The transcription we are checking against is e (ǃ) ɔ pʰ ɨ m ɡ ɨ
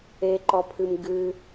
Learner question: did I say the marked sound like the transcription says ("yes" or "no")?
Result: yes